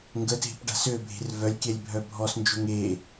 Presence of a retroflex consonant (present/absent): present